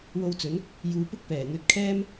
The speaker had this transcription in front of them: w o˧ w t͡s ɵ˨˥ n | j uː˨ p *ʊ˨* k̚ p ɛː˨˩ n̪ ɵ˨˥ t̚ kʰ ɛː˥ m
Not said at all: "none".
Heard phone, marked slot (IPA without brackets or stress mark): ʊ˥